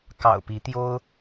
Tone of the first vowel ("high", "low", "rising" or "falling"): low